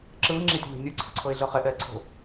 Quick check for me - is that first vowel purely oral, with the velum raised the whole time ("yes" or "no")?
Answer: yes